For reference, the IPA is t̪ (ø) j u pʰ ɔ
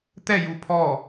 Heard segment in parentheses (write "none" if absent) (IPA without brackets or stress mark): ɛ